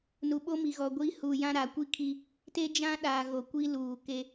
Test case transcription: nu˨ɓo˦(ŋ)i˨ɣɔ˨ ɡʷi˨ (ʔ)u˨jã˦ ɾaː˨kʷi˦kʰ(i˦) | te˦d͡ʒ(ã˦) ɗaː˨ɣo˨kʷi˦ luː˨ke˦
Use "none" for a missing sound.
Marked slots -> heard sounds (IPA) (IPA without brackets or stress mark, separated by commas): m, h, i˦, ã˦